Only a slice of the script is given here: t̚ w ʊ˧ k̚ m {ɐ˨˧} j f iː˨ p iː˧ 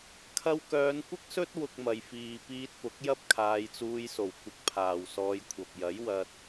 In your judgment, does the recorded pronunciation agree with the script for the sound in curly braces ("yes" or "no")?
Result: no